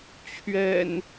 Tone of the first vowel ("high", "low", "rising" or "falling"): low